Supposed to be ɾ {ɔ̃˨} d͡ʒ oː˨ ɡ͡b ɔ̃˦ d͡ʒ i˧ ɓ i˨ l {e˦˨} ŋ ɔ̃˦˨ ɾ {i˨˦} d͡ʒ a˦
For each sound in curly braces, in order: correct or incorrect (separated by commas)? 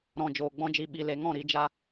correct, incorrect, correct